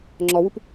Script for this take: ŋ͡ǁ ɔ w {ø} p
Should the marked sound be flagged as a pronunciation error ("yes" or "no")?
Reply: yes